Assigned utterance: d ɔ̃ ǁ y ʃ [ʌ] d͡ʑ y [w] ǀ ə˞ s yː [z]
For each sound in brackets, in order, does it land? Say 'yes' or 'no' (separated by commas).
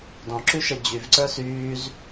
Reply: yes, no, yes